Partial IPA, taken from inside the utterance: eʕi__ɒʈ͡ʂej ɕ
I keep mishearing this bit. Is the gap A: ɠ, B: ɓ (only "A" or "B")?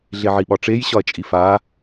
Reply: B